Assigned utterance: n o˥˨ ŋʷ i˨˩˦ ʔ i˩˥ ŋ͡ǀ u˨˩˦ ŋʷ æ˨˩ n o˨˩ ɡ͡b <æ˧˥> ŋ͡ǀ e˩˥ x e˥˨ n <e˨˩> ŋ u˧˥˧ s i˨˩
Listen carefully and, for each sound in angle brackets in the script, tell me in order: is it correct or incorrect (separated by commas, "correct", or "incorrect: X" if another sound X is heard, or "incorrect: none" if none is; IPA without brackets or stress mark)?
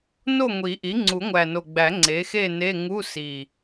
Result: incorrect: æ˨˩˦, incorrect: e˧˥˧